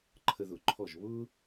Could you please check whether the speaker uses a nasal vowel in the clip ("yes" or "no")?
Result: no